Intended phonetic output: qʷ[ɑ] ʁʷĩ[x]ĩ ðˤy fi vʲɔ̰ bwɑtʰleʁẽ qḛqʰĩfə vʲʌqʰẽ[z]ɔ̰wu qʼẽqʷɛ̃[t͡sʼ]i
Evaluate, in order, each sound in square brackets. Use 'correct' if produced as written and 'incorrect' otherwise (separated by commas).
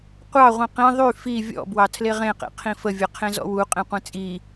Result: correct, incorrect, correct, correct